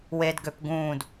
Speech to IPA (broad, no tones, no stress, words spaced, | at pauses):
wedɡøp ɡũːd